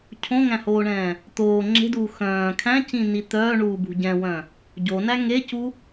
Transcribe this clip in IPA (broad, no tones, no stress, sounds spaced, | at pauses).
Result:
cʰ õ ŋ æ̃ h oː ɳ ɛ̃ː | t̪ oː ŋ͡ǁ e̤ d uː x œ̃ː kʰ æ̃ c ĩ n i t̪ œː ɳ uː b ṳ ɟ ɛ̃ w œ̃ | ɟ o n æ ŋ e c u